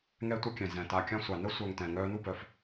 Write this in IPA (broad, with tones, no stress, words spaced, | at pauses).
ŋɛ˦tʷə˦kʲɛ̃˩ zɛ̃˩ ta˨kʲã˦ sʷa˩nə˥ sʷœ˨ŋ tɛ̃˩ ŋœː˦nu˥bœ˩f